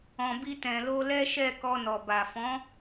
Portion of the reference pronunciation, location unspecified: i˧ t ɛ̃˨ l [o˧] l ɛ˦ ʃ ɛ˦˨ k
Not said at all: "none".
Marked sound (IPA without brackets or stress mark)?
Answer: o˧